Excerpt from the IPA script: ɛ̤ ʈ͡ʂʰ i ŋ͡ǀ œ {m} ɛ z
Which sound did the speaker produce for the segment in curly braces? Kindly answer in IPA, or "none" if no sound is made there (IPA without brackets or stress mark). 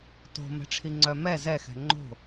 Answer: m